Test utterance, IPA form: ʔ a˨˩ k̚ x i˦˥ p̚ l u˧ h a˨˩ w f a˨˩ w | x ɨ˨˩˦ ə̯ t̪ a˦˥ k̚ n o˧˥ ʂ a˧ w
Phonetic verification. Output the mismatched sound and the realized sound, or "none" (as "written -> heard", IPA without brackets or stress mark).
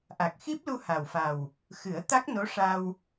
none